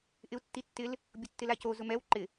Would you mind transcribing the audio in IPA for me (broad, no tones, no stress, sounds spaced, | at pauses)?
ʔ ɪ u̯ tː i tː ɪ l | bʲ ʊ tː ɪ l a c o z ʊ m ɛ w ǃ ɪ